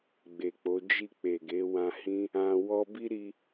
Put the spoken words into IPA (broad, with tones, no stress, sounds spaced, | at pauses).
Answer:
ɡ͡b e˨ k͡p o˨˦ d͡ʒ i˦˨ k͡p e˨ ɡ e˨˦ w ã˧ h ĩ˦ | ã˧ w ɔ˦ b i˦ ɾ i˧